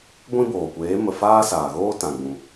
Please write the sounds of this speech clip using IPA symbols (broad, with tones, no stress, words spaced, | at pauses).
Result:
ɡʷĩ˦boː˨kʷeː˨˦ mə˨ faː˦saː˨ɣoː˦ tã˨ɡ͡bũ˨